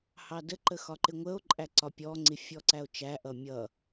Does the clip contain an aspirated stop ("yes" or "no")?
no